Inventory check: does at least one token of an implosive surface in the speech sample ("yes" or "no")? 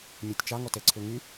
no